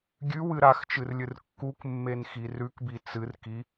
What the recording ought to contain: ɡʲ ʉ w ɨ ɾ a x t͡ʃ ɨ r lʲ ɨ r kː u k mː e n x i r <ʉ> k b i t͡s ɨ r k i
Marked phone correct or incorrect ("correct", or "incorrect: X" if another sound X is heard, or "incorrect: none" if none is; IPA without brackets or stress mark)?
correct